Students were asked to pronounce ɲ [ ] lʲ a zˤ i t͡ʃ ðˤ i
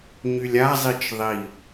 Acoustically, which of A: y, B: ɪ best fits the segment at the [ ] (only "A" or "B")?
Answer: A